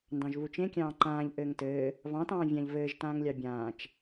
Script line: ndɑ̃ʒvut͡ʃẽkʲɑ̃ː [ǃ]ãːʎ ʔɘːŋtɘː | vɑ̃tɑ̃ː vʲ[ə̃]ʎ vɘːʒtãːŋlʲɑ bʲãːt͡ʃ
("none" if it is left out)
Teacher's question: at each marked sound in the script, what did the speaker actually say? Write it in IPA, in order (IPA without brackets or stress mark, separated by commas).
ǃ, ã